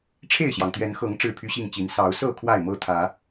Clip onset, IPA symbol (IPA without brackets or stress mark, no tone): ʈ͡ʂʰ